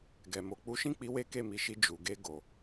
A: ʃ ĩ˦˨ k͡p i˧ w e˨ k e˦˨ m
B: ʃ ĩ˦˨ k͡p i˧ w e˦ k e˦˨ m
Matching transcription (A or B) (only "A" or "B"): B